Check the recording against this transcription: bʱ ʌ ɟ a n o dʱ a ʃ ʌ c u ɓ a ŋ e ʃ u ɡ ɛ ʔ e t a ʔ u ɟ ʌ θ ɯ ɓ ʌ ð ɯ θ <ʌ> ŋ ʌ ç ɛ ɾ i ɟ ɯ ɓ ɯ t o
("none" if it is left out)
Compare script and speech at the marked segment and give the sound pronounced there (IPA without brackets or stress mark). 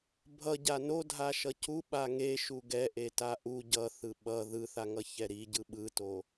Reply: a